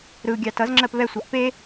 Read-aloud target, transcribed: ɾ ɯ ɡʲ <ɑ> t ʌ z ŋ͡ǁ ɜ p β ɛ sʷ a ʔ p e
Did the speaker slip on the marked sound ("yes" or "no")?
no